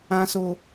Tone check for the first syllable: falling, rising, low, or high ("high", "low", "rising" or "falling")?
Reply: high